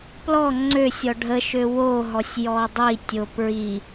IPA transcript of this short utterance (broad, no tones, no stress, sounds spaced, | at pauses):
p l ɔ ŋ͡ǀ ø sʲ ɔ ɖʱ ə ʃ ø w o ɦ ɔ sʲ j ɔ dˤ i tʲ o p ɹ i